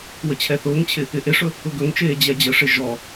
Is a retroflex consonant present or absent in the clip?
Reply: present